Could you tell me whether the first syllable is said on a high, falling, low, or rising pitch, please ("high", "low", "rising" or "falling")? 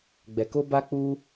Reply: low